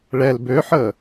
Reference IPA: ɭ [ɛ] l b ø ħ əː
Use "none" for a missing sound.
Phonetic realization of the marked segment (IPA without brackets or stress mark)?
ɛ